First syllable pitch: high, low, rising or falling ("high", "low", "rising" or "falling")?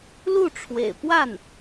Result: falling